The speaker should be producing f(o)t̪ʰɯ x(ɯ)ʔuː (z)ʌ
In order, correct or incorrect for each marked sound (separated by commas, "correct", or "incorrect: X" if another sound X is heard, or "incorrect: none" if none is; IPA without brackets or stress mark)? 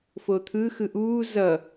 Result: correct, correct, correct